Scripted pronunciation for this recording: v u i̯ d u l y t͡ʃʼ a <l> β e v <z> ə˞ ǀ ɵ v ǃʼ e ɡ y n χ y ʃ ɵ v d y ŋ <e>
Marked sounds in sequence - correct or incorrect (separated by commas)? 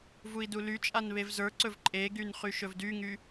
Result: incorrect, correct, incorrect